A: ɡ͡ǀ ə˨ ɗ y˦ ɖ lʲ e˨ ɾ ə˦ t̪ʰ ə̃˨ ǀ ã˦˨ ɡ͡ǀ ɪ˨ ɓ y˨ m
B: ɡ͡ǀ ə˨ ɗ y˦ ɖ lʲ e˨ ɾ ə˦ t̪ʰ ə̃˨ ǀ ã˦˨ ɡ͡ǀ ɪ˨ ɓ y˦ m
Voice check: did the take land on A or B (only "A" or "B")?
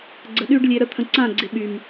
A